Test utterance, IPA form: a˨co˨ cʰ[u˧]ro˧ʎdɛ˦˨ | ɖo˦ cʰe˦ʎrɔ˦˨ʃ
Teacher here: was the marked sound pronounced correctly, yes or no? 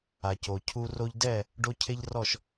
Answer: yes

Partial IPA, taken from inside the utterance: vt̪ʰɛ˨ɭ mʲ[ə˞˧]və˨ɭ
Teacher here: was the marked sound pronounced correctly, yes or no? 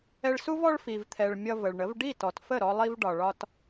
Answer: no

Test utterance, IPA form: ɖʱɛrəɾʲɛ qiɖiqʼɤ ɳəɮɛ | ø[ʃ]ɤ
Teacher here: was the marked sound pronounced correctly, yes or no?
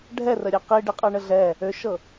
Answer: yes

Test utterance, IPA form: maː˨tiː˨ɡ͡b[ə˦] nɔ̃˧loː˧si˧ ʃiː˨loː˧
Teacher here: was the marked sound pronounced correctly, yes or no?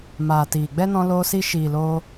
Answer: no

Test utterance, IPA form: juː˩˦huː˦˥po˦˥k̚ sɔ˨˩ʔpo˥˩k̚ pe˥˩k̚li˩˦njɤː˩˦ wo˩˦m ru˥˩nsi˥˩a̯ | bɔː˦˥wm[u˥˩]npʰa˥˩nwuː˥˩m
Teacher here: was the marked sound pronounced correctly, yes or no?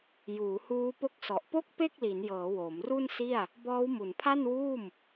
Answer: no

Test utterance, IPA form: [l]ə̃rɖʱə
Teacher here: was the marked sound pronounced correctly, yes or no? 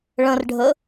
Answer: no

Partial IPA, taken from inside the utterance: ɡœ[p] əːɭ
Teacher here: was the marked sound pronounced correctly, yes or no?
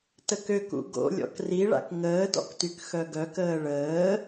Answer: no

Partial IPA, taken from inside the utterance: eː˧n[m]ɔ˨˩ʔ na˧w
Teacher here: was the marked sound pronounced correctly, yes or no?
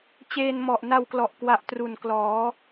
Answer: yes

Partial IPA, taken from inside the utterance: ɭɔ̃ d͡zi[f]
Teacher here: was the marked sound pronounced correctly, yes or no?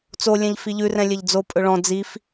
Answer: yes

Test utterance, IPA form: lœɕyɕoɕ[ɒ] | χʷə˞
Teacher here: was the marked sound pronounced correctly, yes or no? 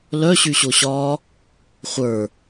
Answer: no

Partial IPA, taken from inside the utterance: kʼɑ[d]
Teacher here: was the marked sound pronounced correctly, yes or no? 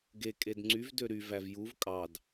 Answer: yes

